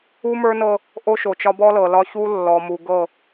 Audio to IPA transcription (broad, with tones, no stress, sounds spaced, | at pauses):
u˦ m ə˞˦ n ɤ˦ | ʔ o˦ ʃ o˨ t͡ʃ ɒ˦ b ɔ˦ l ɤ˨ l ɒ˦ ç u˦ lː ɔ˨ m u˨ ɡ ɤ˦˨